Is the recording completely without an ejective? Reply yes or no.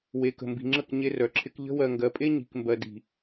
no